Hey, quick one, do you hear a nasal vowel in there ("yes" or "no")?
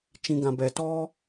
yes